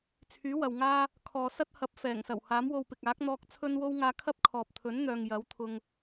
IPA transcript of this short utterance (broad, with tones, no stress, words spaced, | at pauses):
t͡sʰyː˨˥wɐ˨wŋaː˥ | kʰɔː˨sɐ˥t̚hɐ˨˥p̚ fɛː˨˩ŋ sɐ˨˩whaː˨˥mwo˧wpɪ˨k̚ aː˨˥k̚n̪ɔː˧k̚ t͡sʰɵ˥nwo˥w ŋaː˧kʰɐ˥p̚kʰɔː˨p̚ t̪ʰɵ˨˥nn̪œː˨ŋ jɐ˨˥wt̪ʰʊ˧ŋ